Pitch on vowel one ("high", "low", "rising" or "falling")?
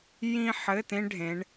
high